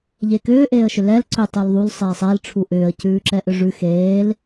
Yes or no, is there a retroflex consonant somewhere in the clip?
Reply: yes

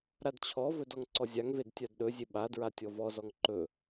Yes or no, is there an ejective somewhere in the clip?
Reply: no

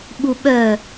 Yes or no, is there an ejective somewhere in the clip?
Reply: no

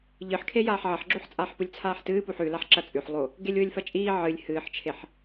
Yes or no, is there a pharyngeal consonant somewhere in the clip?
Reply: yes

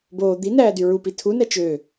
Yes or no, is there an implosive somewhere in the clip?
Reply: no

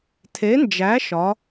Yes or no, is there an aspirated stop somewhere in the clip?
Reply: yes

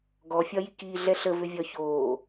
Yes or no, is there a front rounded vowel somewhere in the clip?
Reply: yes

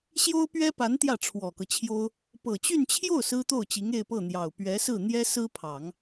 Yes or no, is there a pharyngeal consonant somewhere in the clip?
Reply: no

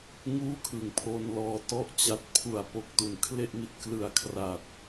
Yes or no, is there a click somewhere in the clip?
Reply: no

